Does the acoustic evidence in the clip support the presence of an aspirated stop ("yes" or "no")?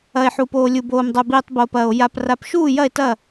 no